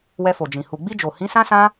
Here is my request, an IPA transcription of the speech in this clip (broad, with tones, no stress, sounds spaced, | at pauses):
w ɛ˧ f o˨ d͡ʒ ĩ˨ h u˨ ɡ͡b i˧ d͡ʒ o˨ h ĩ˨˦ s ã˦ s ã˦